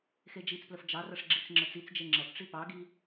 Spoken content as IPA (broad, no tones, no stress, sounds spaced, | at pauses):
x e d͡ʒ i t͡s p l ə f d͡ʒ ɑ r ɐ ʂ ɡ͡ǁ i t͡s ŋ͡ǁ ə t͡s i t͡s d͡ʒ e ŋ͡ǁ ɐ p ʈ͡ʂ i p ɑ ɡ i